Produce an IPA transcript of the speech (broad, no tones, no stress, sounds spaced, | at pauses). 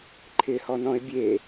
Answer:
ǃʰ ɪ h ɔ n ɔ̃ ɪ̯ bʲ e